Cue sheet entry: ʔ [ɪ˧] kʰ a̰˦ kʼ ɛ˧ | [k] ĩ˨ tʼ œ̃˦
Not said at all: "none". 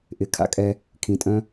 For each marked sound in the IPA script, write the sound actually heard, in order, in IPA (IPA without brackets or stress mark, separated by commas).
ɪ˨, kʰ